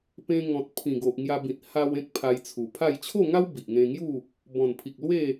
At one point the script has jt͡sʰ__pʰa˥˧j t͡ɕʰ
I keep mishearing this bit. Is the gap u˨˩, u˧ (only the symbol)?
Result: u˨˩